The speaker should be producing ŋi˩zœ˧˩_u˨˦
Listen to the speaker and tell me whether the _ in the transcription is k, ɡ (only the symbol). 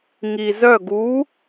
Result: ɡ